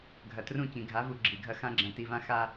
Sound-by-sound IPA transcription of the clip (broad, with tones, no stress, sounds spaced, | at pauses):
ɡʱ ɐ˨ t r ũ˦˨ c ĩ˨ ɡʱ a˨˦ v u˨ ɡ͡ǁ i˨ ɡʱ ɐ˦ x ã˦ ɡ͡ǁ ɐ̃˨˦ t i˨ v ã˦ x a˦